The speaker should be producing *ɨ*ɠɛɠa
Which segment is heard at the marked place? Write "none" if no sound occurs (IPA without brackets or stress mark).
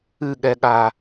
ɨ